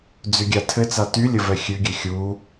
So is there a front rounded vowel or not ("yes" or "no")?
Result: yes